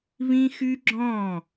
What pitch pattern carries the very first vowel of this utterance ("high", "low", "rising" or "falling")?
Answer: high